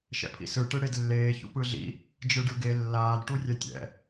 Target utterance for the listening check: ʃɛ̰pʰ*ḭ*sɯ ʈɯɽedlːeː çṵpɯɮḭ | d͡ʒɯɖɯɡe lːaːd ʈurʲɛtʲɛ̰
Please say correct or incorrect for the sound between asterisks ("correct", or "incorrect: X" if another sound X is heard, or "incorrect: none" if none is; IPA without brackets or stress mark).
correct